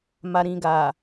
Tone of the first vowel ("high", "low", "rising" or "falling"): low